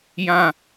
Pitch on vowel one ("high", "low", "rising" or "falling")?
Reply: high